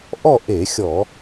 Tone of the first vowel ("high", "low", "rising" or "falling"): falling